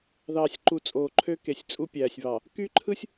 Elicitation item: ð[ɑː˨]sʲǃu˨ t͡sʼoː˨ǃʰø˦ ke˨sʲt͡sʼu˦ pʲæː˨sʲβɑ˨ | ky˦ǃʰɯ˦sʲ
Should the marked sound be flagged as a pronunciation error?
no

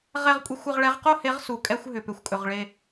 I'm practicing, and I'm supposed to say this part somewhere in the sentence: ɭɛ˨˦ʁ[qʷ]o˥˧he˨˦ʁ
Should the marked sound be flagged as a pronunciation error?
yes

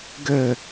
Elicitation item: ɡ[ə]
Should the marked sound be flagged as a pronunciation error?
no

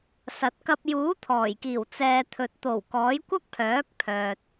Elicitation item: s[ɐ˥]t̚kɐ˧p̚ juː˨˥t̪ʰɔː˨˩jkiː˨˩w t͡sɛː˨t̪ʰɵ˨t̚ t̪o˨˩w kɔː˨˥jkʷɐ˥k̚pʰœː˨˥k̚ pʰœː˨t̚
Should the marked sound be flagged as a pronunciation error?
yes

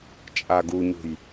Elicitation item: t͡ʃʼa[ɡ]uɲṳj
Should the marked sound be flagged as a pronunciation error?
no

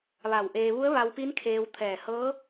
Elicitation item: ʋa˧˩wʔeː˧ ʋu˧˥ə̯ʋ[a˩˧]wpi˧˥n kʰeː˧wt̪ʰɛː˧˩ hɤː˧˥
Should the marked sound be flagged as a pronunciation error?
yes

